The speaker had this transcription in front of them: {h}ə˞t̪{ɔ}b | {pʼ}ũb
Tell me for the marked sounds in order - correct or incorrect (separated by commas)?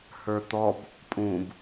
correct, correct, correct